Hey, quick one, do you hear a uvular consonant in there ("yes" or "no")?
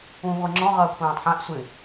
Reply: yes